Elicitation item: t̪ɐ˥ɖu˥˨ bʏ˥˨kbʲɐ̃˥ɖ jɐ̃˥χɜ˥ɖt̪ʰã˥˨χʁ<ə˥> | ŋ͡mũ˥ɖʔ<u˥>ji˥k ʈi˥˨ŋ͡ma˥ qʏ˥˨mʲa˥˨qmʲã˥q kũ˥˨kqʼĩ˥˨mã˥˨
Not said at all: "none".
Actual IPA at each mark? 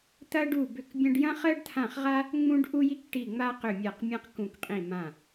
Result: a˥, u˥

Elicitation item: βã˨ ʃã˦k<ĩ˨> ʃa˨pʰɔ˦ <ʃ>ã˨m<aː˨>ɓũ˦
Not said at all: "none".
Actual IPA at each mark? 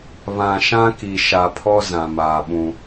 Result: i˨, z, aː˨

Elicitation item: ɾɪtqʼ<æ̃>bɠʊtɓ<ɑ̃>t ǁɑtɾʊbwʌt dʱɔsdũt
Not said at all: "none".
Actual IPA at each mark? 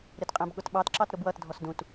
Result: æ̃, ɑ

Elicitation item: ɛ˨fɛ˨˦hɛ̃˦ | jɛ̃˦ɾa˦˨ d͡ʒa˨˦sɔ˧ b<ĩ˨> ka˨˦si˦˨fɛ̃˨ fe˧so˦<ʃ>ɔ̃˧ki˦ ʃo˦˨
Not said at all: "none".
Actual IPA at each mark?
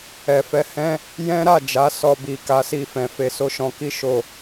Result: i˨, ʃ

